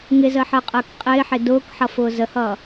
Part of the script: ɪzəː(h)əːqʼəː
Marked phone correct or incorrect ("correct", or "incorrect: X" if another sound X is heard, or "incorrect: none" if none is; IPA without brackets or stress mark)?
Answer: incorrect: ħ